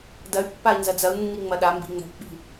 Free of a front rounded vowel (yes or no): no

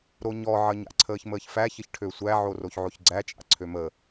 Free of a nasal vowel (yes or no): yes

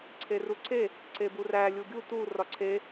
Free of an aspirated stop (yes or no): no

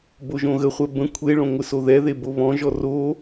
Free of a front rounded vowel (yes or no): yes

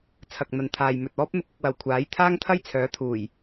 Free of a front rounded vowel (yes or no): no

